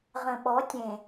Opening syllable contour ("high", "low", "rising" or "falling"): low